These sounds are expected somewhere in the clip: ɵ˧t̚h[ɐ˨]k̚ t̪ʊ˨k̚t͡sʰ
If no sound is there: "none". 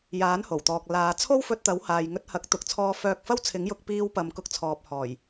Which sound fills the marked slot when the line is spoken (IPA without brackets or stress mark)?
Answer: ɐ˨˥